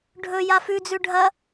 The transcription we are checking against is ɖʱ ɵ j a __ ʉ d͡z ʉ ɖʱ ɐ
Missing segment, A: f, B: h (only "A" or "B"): A